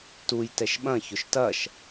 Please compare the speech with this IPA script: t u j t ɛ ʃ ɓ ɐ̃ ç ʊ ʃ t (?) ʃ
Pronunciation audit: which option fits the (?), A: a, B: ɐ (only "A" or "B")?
B